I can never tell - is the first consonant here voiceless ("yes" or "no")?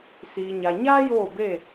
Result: yes